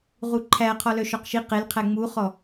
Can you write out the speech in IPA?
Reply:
ʁuǃʰæ qʰɔlœʃɔqʃi qelqʰæ ŋ͡muχɔ

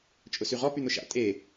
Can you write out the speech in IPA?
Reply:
t͡ʃʼʊsyʁɔ pyn̪ʊʃa̰ tʼe

